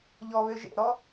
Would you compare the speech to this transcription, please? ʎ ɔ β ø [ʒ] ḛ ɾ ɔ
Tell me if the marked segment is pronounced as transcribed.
yes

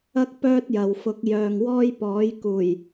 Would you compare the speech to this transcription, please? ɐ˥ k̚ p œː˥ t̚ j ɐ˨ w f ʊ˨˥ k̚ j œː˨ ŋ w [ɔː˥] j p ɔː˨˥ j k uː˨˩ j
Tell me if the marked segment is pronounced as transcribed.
yes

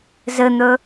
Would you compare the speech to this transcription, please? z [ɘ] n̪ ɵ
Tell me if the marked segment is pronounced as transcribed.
yes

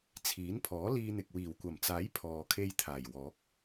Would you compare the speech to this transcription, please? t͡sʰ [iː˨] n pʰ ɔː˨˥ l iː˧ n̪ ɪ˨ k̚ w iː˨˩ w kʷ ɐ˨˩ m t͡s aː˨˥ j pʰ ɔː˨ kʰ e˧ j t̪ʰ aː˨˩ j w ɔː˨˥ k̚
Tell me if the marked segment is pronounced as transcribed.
no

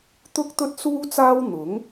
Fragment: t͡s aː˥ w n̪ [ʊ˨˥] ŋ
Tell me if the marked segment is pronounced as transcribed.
yes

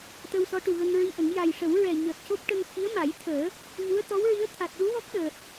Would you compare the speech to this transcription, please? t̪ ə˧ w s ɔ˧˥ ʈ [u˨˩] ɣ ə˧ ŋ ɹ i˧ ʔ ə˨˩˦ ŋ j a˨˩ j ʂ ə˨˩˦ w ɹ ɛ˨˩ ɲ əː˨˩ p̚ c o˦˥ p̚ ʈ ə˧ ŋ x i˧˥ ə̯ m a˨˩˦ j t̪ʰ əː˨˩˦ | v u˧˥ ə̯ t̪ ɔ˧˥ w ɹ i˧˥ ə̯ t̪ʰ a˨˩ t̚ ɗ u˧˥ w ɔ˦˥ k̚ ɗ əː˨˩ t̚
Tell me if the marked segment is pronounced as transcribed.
yes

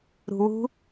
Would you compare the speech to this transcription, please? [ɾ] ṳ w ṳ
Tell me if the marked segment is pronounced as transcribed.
yes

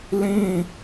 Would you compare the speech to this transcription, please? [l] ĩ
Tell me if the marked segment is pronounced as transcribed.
yes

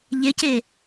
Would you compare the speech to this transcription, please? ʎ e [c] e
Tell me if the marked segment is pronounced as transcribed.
yes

